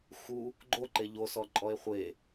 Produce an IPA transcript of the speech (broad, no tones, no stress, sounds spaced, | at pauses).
x u | ɡ͡ǃ o ǃ e ʎ o s ɔ ǃʼ ɔ e̯ χʷ e